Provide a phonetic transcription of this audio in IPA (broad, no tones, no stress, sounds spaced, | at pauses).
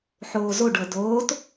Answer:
ħ oː z o ɖ ɤ d oː t